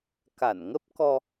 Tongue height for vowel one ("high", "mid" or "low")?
low